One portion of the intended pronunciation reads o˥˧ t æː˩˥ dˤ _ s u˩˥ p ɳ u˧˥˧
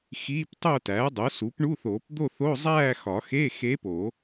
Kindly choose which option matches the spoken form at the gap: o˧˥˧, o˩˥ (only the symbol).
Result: o˩˥